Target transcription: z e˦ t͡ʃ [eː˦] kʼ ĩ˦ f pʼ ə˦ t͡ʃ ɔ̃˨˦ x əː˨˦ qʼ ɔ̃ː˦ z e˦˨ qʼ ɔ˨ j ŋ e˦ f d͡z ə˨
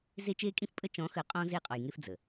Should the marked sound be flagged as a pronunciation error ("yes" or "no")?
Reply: no